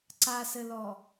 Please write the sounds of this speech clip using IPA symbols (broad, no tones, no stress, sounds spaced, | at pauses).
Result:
ǀ a s ɘ l ɔ